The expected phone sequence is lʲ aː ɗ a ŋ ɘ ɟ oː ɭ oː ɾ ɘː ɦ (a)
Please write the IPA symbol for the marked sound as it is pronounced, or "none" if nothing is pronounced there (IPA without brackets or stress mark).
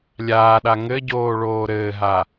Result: a